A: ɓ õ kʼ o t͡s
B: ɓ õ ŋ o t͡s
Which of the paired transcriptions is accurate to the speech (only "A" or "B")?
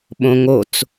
B